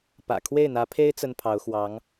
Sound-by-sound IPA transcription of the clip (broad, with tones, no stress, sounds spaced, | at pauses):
p ä̰˨˩ kʰ w e˥˩ ɪ̯ n̪ ä˧˥ pʰ e˥ ɪ̯ t͡s ə˥ n pʰ ɑ˧˥ ʊ̯ x w ɑ˧˥ ŋ